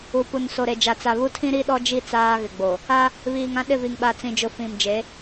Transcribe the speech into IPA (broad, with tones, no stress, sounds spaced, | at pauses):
u˨ p u˨ n s o˨ ɾ e˨ d͡ʒ a˨ t͡s a˨ β u˦ tʰ ĩ˦ ɾ i˦ ɗ ɔ˦ d͡ʒ i˦ t͡s aː˦ ɣ ɪ˨ ɡ͡b o˨ | a˦ | β iː˨ ŋ ã˦ ɗ ɪ˦˨ v i˨ ŋ ɓ a˨ t͡s ĩ˨ d͡ʒ ʊ˨ f ĩ˨ m d͡ʒ e˨˦